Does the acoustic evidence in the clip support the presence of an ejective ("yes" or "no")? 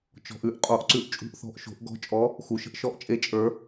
yes